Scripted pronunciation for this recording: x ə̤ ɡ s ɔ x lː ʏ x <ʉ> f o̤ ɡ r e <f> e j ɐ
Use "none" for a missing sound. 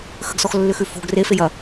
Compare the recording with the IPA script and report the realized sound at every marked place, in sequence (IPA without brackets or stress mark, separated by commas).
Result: ʉ, f